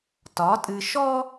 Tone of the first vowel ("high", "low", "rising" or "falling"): rising